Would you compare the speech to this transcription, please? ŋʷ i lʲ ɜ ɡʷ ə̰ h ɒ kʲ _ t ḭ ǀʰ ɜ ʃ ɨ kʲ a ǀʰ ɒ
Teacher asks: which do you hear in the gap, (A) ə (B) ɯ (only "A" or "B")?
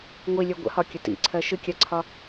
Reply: A